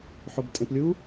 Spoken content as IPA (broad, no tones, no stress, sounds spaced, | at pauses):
ħ o b tʼ ẽ p lʲ u